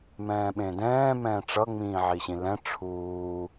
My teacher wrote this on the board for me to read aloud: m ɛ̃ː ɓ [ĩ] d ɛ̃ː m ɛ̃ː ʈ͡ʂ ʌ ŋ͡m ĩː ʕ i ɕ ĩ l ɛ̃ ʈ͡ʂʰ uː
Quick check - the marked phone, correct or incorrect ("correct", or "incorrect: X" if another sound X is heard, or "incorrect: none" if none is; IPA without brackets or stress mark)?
incorrect: ẽ